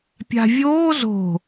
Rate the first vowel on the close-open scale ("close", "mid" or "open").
open